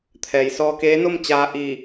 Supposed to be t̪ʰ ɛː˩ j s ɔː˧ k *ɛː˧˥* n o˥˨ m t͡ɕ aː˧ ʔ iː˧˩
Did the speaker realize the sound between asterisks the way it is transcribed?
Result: no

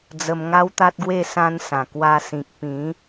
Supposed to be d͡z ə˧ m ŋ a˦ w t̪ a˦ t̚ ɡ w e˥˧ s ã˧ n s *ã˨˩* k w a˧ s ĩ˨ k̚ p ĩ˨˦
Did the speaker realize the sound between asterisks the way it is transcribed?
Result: yes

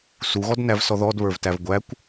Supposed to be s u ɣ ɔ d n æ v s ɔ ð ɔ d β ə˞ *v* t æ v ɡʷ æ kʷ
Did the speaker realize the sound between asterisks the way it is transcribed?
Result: yes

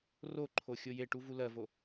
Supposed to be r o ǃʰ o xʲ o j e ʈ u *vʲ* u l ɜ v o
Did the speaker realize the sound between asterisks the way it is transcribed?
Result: no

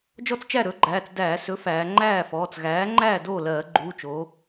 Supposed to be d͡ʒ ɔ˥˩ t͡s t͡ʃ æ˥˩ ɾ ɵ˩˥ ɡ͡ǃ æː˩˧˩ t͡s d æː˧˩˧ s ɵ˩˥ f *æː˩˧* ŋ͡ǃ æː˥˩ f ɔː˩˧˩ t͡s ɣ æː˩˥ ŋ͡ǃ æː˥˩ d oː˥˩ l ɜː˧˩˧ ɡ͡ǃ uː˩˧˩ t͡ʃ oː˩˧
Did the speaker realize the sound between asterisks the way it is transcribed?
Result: yes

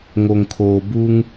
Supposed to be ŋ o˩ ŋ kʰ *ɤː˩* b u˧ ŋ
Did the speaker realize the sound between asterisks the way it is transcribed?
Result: no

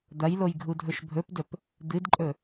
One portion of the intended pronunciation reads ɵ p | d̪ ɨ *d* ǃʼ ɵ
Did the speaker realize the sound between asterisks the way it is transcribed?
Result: yes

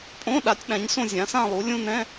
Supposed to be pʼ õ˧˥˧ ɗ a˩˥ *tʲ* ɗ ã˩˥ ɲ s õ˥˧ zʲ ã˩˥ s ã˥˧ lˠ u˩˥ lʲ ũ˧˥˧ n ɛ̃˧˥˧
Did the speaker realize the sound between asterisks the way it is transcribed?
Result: yes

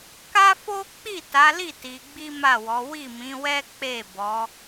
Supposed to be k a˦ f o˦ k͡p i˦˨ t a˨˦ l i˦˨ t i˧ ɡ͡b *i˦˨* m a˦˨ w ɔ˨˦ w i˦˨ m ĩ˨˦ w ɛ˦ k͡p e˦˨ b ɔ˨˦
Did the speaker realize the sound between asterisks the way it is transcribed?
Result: no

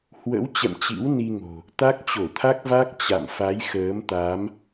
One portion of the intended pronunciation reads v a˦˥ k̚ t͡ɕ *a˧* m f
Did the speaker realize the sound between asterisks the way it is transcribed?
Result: no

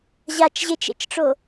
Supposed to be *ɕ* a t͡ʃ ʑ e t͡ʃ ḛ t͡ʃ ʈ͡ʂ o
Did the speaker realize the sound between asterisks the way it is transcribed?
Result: no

